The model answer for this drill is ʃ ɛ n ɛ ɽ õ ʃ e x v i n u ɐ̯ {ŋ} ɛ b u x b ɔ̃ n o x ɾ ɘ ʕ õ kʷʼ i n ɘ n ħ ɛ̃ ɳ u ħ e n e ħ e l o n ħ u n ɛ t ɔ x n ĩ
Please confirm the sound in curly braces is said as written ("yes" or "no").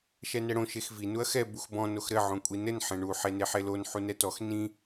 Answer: no